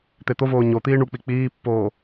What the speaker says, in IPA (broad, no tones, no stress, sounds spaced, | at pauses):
t̪ e t̪ o v oː ɲ o t̪ iː ɳ u k͡p i k͡p iː pː oː